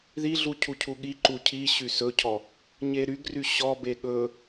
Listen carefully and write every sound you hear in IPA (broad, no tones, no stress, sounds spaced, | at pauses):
ð i ɮ u cʰ u cʰ u ɠ i ǃ u cʰ i ɕ y s ɵ cʰ ɔ | ɲ e ɾ y ɡ r y ɕ ɔ b e ɠ ɵ